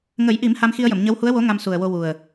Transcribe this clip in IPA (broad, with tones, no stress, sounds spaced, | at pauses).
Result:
ŋ ə˨˩˦ j ʔ i˨˩˦ m h a˧ m x i˧ ə̯ j ə˨˩˨ m ɲ ə˧˥ w h u˧˥ ə̯ w o˧˥ ŋ a˧ m s u˨˩ ə̯ w o˧ w u˨˩ ə̯